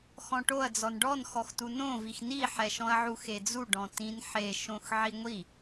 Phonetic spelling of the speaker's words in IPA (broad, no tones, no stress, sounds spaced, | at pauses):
x ɔ̃ ʈ o ɐ̯ d͡z ɔ n ɖ ɔ n x ɔ x t u n õ v i x n i ħ ɛ ʃ ɔ̃ ɐ̯ ʕ u x e d͡z u ɖ ɔ̃ t ĩ n ħ e ʃ õ x ʕ i ŋʷ i